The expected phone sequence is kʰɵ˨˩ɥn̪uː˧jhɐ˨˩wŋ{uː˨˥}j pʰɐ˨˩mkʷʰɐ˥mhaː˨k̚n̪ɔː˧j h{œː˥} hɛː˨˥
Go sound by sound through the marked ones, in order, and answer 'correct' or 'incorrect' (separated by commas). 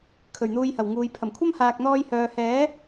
incorrect, incorrect